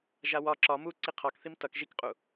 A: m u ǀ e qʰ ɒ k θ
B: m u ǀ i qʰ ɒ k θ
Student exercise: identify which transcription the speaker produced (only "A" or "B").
B